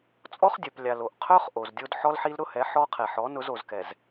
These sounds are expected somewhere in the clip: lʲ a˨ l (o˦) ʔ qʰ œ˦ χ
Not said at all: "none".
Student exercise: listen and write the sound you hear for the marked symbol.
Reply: o˨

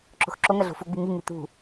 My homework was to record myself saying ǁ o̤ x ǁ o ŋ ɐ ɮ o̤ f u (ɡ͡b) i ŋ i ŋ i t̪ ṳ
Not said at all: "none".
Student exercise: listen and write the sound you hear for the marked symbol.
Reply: ɡ͡b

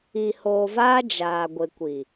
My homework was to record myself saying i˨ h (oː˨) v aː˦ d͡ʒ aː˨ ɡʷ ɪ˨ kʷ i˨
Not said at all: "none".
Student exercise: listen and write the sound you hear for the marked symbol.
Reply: oː˨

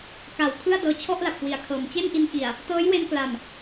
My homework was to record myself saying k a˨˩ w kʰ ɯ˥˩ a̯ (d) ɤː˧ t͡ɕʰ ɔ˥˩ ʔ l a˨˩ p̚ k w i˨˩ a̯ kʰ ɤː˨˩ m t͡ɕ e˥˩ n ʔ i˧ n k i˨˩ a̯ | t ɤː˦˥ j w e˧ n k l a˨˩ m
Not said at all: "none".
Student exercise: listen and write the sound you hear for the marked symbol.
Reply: d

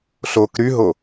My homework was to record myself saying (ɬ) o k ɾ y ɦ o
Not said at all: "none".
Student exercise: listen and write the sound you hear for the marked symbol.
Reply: ɬ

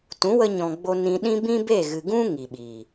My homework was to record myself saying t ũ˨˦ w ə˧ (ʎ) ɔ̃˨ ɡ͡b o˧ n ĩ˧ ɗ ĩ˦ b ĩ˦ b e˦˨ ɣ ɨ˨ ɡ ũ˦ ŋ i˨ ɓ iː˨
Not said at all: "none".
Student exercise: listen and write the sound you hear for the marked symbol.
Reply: ɲ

